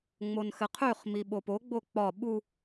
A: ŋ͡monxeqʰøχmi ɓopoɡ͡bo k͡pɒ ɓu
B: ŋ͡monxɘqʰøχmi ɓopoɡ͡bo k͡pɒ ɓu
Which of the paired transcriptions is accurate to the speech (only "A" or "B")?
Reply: B